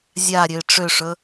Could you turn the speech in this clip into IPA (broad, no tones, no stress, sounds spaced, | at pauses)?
zʲ a ɾʲ ø ɪ̯ ʈ͡ʂ ø ʂ ɵ